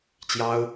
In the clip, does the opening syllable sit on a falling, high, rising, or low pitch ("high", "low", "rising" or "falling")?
high